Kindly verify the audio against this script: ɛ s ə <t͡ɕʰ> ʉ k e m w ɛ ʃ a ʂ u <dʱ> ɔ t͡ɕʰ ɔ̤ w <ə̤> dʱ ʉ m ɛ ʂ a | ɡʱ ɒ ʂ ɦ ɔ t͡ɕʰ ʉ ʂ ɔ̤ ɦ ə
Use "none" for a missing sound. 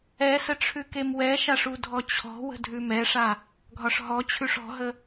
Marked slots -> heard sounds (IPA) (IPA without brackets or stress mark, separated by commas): ʈ͡ʂʰ, dʱ, ə̤